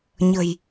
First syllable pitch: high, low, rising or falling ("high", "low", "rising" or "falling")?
low